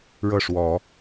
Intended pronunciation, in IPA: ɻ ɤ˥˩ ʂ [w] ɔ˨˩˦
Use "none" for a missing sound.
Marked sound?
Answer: w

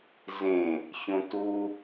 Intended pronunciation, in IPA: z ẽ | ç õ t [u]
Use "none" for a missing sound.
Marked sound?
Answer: u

